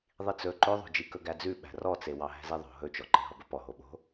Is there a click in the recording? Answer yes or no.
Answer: yes